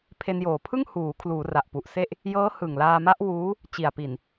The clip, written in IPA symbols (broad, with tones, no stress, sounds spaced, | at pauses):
pʰ e˧ n j oː˨˩ pʰ ɯ˥˩ ŋ h uː˩˦ kʰ l uː˩˦ r a˨˩ ʔ p u˨˩ ʔ s e˥˩ ʔ | j ɤː˦˥ h ɯ˨˩ ŋ l aː˧ m a˦˥ ʔ w uː˦˥ | t͡ɕ i˨˩ a̯ p i˨˩ n